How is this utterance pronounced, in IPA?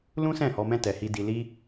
l ũ˦ s ɛ̃˦˨ h ɔ˧ m ɛ̃˦ t ɛ˧ h i˦ d i˧ l i˦

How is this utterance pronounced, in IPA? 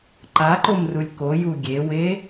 ǃ a ǃ o m r u lʲ k o j u ɡʲ e w e

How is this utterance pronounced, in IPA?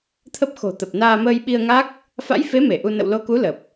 t̪ʰ ə˦˥ p̚ x o̤˨˩ t̪ ə˨˩ p̚ n aː˧ m əː˧ j ɓ i˧ ə̯ ŋ a˦˥ k̚ | f a̰˧˥ j f e˨˦ m e˧˩ ʔ u˧ n ə̰˧˨ w l o˨˦ k u˨˦ l ə˨˩ p̚

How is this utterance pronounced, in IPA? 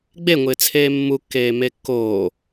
ɡ͡b e ŋʷ ɪː t͡sʰ eː mː u kː eː m e kː oː

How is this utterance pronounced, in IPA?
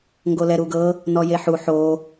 ŋ ɡ o l ɛ ɾ u ɡ ɤ | n ɔ j e ħ u ħ o

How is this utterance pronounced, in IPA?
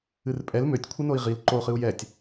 ɨ r pʼ ɛ l m ø tʲ kʷʰ ɨ n o i̯ ʁ i l ǃ o χ ɨ u̯ j ɛ tʲ

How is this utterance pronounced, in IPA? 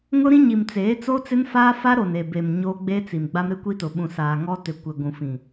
ŋ ʊ˦ ɾ ĩ˦ ɲ i˨ m t͡s eː˨˦ t͡s o˦ t͡s ɪ˦ n f aː˦ f a˦ ɾ o˨ n e˨ b e˨ m ɲ o˦ ɡ͡b e˦ t͡s i˨ m ɡ͡b a˦ m ɾ ɪ˦ kʷ i˦ t ʊ˨ ɓ ũ˨ s aː˨ ŋ ɔ˦ t ɪ˨ kʷ ɪ˨ ɡʷ ũ˨ f ĩ˨

